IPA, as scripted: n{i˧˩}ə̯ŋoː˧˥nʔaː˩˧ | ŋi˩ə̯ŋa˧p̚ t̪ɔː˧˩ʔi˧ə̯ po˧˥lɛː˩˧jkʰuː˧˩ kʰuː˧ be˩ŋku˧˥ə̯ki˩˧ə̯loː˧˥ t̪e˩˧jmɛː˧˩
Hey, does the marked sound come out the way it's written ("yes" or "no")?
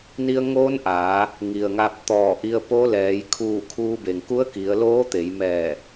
no